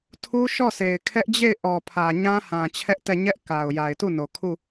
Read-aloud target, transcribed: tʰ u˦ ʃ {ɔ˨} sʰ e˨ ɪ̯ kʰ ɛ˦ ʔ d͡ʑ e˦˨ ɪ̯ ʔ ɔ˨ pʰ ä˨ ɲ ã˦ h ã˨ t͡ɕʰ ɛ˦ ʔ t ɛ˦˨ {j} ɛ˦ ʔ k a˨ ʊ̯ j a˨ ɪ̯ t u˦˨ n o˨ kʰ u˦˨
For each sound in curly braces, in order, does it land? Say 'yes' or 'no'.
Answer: no, no

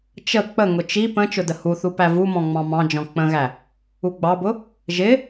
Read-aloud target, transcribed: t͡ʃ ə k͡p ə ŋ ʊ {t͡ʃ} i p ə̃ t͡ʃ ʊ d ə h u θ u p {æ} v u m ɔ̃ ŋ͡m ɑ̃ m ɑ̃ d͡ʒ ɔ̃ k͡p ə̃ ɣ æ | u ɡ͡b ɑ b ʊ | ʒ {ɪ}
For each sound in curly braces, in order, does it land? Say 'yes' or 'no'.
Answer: yes, yes, yes

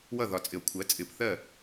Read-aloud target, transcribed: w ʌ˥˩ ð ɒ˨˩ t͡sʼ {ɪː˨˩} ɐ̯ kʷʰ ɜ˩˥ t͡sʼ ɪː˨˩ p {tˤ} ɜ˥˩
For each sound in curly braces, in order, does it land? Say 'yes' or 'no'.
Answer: no, no

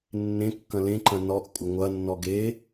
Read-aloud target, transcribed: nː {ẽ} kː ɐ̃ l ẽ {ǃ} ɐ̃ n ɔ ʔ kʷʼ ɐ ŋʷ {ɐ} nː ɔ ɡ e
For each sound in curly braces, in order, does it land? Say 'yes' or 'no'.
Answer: yes, yes, yes

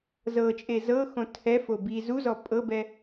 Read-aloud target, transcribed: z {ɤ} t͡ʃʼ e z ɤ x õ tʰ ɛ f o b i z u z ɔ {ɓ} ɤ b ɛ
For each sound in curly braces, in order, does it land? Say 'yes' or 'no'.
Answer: yes, no

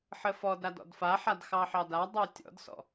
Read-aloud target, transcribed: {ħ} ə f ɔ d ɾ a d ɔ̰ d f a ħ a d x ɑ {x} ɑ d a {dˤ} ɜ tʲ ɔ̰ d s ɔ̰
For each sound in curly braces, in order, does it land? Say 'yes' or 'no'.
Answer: yes, no, yes

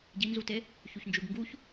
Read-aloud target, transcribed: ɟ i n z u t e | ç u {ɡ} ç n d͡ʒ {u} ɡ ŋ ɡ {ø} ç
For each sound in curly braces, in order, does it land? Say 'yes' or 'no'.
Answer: no, yes, no

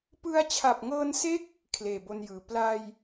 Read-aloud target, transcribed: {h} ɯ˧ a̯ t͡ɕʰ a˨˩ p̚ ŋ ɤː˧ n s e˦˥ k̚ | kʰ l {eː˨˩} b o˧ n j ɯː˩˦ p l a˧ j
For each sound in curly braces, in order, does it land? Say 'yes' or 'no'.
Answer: no, yes

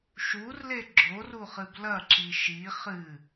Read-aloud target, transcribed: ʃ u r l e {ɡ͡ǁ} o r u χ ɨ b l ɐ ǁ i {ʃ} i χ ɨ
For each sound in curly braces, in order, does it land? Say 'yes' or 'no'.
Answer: yes, yes

